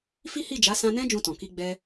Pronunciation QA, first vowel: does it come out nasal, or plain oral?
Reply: oral